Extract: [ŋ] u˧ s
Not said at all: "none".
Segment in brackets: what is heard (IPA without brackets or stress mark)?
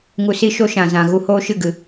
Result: ŋ